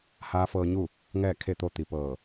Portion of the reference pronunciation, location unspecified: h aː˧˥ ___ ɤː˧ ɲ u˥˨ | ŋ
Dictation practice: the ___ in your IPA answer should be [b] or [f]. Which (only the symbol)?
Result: f